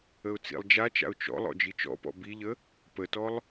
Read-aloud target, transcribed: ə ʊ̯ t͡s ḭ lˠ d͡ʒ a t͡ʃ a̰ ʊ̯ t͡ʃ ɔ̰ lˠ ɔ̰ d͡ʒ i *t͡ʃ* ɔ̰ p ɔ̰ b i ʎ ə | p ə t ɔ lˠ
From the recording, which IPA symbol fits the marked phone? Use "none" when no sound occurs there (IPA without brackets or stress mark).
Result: t͡ʃ